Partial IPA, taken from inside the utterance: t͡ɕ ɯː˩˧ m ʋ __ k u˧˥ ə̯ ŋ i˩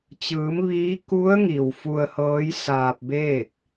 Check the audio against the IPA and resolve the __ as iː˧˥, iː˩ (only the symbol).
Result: iː˧˥